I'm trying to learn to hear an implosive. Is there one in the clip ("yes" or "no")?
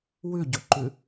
no